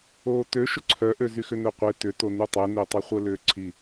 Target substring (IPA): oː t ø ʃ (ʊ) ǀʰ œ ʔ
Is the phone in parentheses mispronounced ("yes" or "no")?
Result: no